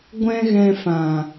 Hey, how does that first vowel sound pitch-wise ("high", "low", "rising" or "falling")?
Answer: high